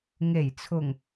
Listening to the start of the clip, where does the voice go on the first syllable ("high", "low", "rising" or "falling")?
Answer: low